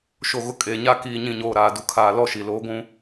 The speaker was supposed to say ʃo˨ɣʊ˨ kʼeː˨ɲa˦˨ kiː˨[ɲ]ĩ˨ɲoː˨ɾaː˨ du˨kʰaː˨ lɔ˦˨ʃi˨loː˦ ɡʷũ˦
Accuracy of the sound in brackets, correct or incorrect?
correct